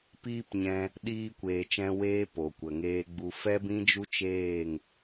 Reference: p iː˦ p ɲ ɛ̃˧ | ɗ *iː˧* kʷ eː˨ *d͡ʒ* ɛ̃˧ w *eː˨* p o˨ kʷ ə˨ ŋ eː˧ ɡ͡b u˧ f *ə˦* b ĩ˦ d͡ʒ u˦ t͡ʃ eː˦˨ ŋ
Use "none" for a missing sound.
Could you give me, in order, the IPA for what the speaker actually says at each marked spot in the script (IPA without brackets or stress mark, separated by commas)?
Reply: iː˧, t͡ʃ, eː˦, ɛ˦